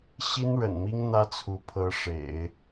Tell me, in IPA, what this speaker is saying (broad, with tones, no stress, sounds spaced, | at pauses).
ɕ i˥ n ɻ ə̰˨˩ n m i˥ ŋ n̪ ä˥ t͡sʰ u˧˥ pʰ ɤ˧˥ ʂ ḛ˨˩˦ ɪ̯